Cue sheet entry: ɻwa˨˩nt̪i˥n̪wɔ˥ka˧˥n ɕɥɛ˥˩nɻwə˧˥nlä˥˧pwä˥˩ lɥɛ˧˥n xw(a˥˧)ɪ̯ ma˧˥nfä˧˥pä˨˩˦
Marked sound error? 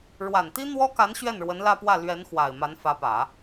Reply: yes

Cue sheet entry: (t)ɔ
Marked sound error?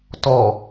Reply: no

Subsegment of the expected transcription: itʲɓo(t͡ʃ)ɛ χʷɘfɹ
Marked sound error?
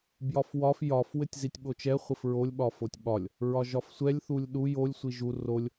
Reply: no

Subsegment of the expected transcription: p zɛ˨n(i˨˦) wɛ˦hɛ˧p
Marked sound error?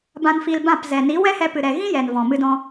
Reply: no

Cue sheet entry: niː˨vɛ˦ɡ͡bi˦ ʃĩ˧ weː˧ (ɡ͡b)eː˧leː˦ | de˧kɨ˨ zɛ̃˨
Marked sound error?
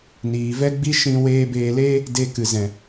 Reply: yes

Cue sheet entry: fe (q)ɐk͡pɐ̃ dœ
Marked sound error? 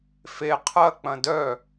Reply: yes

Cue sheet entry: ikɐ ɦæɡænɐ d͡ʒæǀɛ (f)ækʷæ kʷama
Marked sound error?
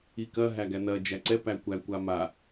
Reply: yes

